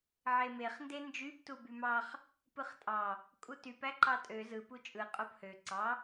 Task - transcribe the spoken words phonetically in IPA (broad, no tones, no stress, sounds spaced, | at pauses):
ʕ e m e χ n d e n d͡ʒ y b t u b y m ɑ χ | p ɯ χ tʼ ɑ | kʼ u t y p æ ǃ ɑ tʼ ø z ɯ p u t͡ʃʼ ɯ qʼ o p h ø ǀ ɑ